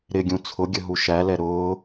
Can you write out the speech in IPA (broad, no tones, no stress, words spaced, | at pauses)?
ɾɪɡʲũ t͡sʰʊɡʲəɦu ʃælɛ ɾʊː